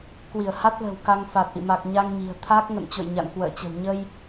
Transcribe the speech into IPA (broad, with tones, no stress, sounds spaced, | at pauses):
k w i˧˩ ə̯ h a˦˥ t̚ l ə̤˨˩ w k a˧ ŋ f a˨˩ t̚ ʔ ḭ˧˨ m a˨˩ k̚ ɲ a˧ ŋ ɲ i̤˨˩ ə̯ t̪ʰ a˦˥ k̚ ŋ ə̰˧˨ n t͡ɕ o̰˧˨ j ɲ a̰˧˨ n k w ə̰ː˧˨ t͡ɕ ə̤˨˩ w ɲ ə˧ j